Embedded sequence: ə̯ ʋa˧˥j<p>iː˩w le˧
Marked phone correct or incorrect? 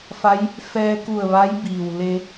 incorrect: b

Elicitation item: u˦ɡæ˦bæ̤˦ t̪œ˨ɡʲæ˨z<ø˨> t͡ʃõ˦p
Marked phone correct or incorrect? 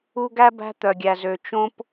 correct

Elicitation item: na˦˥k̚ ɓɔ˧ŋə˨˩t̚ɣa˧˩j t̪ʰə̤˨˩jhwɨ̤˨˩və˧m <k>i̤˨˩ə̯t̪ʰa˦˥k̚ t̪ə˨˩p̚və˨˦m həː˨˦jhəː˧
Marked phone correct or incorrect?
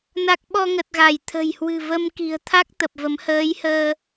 correct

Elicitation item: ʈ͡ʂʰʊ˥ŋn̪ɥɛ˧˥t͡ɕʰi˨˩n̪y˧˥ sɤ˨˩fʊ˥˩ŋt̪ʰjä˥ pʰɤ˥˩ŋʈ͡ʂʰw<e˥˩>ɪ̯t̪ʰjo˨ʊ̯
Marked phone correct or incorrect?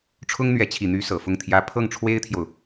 incorrect: e˥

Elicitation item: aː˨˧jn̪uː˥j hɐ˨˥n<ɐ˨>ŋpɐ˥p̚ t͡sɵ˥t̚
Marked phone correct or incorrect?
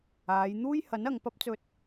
correct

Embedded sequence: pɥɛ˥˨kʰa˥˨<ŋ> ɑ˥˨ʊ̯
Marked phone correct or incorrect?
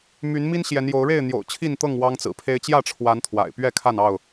incorrect: n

